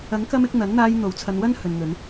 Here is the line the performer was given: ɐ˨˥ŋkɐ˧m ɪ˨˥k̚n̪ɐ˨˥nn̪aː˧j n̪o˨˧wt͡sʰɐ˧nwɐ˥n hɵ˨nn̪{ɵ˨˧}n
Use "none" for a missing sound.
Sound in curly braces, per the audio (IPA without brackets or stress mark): ɵ˨˧